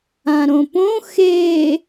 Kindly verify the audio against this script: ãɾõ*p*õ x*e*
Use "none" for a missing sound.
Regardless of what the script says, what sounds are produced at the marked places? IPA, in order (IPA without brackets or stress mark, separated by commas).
p, e